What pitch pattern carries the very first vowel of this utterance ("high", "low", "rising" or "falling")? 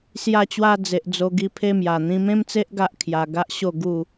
falling